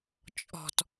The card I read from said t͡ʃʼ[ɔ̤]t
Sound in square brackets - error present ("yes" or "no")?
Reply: no